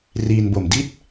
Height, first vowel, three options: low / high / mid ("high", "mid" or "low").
high